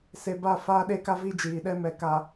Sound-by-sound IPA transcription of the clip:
s e˨ b a˦˨ f aː˦ ɗ e˦ k a˦ v i˦ d͡ʒ iː˨ ɗ ɛ˦ m ɛ˨ k a˨

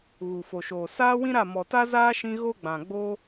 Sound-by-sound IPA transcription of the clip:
ɣ u˨ f o˨ ʃ oː˨ s aː˦ w ĩ˦ ɾ a˦˨ m ɔ˨ t a˦ z aː˦ ʃ ĩ˧ ɣ o˦ ɡ͡b ã˨ ɡ͡b o˦

